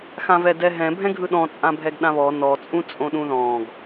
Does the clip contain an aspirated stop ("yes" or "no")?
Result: no